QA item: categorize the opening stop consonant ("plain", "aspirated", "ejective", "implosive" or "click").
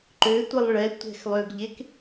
click